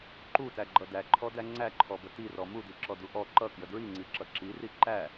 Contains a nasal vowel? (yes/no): no